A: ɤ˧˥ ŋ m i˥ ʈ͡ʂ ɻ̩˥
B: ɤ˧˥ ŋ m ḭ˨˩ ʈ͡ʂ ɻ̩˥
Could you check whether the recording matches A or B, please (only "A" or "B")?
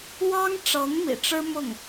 B